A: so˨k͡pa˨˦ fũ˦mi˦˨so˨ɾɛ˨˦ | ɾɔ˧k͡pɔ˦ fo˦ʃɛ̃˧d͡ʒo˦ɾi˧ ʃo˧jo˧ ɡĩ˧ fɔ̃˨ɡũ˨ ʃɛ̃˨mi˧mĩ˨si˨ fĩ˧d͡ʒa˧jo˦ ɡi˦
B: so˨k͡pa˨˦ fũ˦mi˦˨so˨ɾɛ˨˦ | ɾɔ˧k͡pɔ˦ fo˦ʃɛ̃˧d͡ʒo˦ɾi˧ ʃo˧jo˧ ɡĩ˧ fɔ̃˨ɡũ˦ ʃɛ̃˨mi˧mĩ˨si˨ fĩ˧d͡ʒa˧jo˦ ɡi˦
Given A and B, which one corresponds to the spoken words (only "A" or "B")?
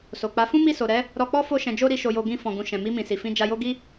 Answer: A